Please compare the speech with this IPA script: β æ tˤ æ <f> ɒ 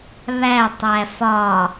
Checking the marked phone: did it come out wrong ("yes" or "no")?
no